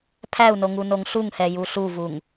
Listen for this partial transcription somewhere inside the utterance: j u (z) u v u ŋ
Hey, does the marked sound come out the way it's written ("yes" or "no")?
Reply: no